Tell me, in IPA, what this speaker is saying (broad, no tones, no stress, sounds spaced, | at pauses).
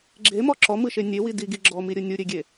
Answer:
ɡ͡ǁ e m ɔ ǁ ɔ m ɯ ʃ e nʲ e w i d i ɡ i ɡ͡ǁ ɔ m i ɾʲ ɯ nʲ u ɾʲ e ɡʲ e